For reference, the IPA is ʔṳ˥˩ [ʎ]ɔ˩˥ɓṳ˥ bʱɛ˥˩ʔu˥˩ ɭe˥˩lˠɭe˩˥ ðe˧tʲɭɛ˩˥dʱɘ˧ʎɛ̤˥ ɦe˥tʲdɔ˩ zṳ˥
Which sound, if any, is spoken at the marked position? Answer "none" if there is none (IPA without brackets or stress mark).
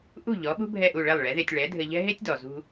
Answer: ʎ